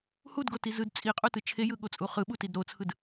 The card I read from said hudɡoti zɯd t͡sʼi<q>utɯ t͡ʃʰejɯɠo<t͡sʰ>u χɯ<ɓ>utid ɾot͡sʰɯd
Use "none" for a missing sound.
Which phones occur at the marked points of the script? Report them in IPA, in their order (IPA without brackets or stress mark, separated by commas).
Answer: qʼ, t͡sʼ, ɓ